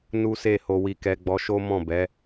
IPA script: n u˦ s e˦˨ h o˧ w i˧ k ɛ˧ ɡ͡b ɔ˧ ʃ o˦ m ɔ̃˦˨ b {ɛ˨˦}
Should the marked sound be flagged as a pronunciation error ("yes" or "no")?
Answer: no